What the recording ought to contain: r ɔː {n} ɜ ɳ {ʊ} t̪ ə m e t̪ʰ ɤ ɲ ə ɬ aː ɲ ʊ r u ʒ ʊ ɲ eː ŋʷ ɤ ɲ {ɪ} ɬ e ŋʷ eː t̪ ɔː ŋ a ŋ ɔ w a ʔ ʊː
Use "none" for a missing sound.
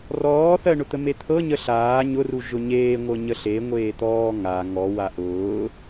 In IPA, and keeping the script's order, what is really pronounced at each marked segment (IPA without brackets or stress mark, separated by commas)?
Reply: θ, ʊ, ə